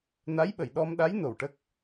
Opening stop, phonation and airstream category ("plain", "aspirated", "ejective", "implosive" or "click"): implosive